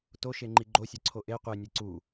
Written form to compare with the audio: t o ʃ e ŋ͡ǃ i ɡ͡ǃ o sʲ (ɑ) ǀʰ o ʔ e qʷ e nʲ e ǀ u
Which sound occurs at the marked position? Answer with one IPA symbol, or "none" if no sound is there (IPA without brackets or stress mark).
ɒ